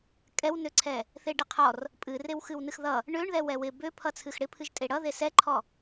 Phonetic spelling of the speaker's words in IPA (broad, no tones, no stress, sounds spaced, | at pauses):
kʼ ɛ w n ø ǀʰ ɛ | θ e ɖ ɪ qʰ ɔ r | pʼ ɨ r e w x ɨ w n ɨ x ð ʌ | ɳ ø ɳ ð ɛ w ɛ w ɪ b ø pʰ ʌ t͡sʰ ɨ x ɽ ɪ pʰ ɨ ʒ tʼ e ɽ ʌ ð e s ɛ ǃʰ ɔ